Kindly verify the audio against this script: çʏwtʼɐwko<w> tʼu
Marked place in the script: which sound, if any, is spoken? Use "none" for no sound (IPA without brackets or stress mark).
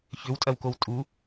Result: w